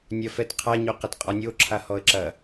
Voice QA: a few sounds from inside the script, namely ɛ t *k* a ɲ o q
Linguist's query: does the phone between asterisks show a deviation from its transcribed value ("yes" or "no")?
yes